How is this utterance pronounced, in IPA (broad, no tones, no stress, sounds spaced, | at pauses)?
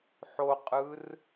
ħ o qʼ ɯ r